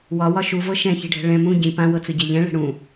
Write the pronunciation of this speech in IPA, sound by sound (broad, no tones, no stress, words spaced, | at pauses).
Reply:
wɒwɒ ʃuvɤ ʃɛ̃çi̤ɖʱɛ̤ ɭɛ̃ mũ ɟĩ pãwɤt͡sʊɟɛ ʎɛ̃ɭɛ̤ ɽũ